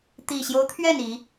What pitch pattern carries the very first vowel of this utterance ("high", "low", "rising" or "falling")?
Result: low